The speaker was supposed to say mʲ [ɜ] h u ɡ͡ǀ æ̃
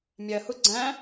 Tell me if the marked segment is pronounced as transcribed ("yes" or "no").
yes